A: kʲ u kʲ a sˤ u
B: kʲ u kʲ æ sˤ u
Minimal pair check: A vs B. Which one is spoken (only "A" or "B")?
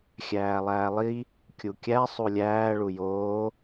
B